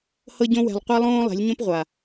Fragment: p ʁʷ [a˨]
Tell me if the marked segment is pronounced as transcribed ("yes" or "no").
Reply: yes